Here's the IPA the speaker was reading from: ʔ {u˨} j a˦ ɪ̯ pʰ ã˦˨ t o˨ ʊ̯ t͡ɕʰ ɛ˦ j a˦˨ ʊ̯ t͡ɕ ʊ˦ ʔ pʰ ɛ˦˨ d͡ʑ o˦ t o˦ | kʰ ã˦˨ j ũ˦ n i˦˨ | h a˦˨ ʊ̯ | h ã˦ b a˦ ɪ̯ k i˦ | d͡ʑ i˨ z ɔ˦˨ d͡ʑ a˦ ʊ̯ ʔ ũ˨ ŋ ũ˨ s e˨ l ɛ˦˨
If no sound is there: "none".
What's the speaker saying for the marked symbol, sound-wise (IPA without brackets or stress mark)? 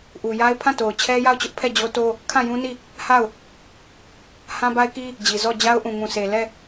u˨